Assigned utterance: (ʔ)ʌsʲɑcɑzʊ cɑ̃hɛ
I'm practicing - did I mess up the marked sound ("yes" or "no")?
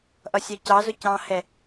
no